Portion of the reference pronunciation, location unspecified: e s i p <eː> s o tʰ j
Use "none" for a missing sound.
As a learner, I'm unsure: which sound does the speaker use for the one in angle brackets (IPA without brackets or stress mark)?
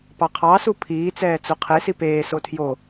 eː